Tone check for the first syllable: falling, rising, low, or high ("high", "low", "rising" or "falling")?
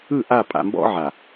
falling